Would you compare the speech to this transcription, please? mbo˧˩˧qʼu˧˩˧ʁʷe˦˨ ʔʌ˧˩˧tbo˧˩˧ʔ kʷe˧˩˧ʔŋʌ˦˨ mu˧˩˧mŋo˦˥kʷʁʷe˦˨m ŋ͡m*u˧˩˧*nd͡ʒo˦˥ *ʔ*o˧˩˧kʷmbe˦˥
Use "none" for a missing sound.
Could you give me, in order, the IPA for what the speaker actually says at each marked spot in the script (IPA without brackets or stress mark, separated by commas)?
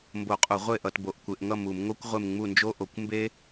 u˦˨, ʔ